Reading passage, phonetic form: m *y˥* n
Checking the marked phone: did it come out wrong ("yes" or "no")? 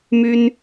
no